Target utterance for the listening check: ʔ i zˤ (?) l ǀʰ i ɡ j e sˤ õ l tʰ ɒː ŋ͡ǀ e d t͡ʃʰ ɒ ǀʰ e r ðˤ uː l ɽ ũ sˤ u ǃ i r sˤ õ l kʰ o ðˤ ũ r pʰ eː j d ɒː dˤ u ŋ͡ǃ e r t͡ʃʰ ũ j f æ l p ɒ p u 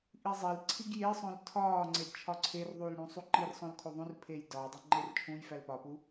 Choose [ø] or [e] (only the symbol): e